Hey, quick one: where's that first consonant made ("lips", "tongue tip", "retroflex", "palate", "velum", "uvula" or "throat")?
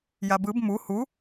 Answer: palate